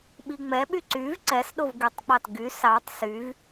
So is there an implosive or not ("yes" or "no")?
yes